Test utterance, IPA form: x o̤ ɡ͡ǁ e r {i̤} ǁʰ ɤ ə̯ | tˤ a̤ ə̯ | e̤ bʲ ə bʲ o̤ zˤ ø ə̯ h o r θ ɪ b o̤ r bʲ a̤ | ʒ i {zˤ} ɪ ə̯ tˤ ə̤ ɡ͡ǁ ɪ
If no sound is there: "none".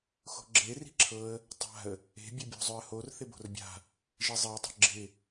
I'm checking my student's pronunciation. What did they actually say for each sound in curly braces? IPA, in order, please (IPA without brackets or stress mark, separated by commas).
i̤, zˤ